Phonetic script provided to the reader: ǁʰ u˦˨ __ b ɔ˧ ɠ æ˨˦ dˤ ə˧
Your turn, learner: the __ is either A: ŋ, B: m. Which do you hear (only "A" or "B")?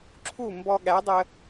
B